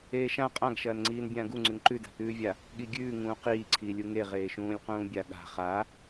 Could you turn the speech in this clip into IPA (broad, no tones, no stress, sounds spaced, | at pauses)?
eː ʃ ã qʼ ã ɡ ʃ ɐː n ŋ͡ǀ iː n bʲ ãː ɡ u ŋ͡ǀ ʉ ŋ ǃ ʉ d a̤ t̪ ʉː vʲ a | ɠ i ɡʲ ʉː ŋ ũː q iː ǀʰ iː lʲ u ŋ e ʁ eː ʃ ũː lʲ q ũː bʲ a ɠ a̤ χ a